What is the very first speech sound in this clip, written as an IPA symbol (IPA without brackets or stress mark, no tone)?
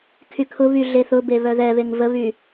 kʰ